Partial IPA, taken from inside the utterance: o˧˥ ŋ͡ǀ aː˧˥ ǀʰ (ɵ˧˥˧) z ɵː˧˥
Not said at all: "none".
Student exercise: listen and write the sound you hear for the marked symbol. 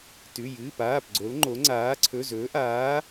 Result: ɵ˧˥˧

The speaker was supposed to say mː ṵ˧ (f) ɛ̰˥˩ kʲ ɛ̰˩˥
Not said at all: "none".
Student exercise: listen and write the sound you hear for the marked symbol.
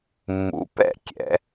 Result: p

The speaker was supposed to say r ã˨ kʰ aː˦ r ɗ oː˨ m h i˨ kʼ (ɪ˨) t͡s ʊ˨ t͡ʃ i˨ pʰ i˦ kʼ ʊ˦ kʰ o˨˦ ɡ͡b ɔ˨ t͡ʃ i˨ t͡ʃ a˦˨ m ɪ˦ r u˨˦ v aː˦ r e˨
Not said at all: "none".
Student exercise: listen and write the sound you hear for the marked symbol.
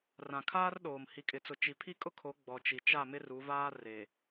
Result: ɪ˨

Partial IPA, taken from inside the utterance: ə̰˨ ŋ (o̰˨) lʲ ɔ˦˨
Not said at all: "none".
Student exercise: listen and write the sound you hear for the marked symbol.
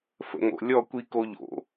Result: o̰˨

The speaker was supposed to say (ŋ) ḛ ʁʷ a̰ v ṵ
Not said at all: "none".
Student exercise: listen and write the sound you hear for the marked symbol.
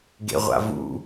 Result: ɡ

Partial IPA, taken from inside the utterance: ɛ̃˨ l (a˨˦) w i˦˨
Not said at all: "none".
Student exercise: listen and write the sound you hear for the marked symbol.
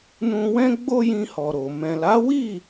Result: a˨˦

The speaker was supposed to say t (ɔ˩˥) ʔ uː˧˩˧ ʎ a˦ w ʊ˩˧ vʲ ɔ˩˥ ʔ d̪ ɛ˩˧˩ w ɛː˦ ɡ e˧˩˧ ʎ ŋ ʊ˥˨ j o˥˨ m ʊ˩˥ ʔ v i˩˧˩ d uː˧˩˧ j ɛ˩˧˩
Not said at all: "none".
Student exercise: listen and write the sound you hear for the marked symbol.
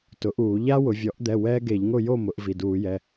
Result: ʊ˩˥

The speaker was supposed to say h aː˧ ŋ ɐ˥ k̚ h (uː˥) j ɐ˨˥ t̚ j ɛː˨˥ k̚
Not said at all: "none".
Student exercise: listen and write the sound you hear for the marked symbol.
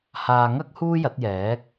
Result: uː˥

